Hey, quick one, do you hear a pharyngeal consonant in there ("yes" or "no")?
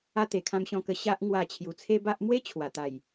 no